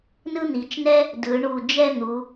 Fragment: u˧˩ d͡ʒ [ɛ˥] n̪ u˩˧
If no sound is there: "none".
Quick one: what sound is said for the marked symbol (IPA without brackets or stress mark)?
ɛ˥˧